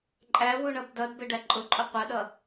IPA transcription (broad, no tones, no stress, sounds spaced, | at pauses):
ǃʼ æ w u ɳ ʌ b d ʌ d b ɪ ɖ æ ǃʼ ʊ ǃʼ ʊ qʷ ʌ ɗ ʌ